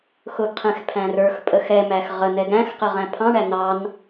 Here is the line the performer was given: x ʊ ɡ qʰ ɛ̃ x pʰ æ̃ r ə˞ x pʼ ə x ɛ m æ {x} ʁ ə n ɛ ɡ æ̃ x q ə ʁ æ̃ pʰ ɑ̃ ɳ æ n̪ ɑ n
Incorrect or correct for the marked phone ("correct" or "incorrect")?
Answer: correct